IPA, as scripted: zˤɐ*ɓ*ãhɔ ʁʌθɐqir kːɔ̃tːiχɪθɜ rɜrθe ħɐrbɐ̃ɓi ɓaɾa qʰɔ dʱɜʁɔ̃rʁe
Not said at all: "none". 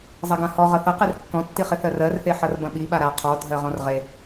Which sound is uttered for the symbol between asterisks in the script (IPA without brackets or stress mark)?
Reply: ɡ